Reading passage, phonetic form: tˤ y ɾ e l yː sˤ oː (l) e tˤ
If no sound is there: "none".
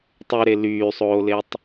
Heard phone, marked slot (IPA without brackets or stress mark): l